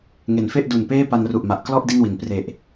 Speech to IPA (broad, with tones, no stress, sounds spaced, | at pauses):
ŋ e˩˦ n f e˥˩ ʔ d u˨˩ n p eː˥˩ p a˧ n r u˨˩ ʔ m a˨˩ ʔ k l ɔ˥˩ ʔ d i˥˩ n w i˩˦ n p r e˨˩ ʔ